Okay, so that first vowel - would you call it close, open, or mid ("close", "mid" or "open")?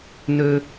mid